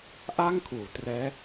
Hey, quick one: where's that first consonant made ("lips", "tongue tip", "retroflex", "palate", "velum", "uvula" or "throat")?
throat